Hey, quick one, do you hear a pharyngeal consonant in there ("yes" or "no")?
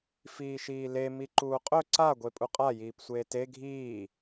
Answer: no